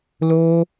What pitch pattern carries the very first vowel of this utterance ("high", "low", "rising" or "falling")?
high